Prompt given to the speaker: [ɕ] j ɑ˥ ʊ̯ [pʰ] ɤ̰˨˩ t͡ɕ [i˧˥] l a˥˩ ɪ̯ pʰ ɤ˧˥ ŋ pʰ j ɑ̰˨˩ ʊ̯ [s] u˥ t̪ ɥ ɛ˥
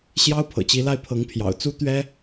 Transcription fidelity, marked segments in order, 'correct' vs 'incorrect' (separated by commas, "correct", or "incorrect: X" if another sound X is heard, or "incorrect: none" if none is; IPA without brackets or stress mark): correct, correct, correct, incorrect: t͡s